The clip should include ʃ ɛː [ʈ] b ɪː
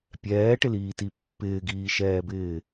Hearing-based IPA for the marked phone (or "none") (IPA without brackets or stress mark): none